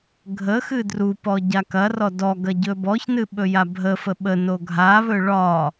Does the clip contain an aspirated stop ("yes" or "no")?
no